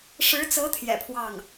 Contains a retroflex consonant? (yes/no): yes